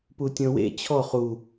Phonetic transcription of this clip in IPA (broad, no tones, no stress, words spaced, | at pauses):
putʲɔ̃wḛ t͡ɕʰɔ χu